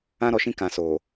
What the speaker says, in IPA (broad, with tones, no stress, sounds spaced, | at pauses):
ã˦ ɾ ɔ˨ ʃ ĩ˦ k ã˨ s oː˨